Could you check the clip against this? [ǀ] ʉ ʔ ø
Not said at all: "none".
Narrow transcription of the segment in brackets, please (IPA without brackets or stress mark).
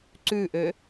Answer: ǀ